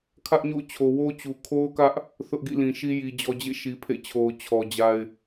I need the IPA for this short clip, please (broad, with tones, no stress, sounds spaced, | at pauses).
kʰ ä˦ ʔ ɲ o̰˦˨ ʊ̯ t͡ɕʰ o˨ w o˦ t͡ɕ u˨ kʰ o˦ ʊ̯ k ä˦ ʔ | θ ʊ˦ ʔ ɡ ḭ˦˨ l ĩ˨ ʃ i˦ j i˨ d͡ʑ ɔ˨ d͡ʑ ḛ˦˨ ʃ i˨ pʰ ḛ˦˨ t͡ɕʰ o˨ ʊ̯ t͡ɕʰ ɔ˨ d͡ʑ a˦ ɪ̯